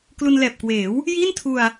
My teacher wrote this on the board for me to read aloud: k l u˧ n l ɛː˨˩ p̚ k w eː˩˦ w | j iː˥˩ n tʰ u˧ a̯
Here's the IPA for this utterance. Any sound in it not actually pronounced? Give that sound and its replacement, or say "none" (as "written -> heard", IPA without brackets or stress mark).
none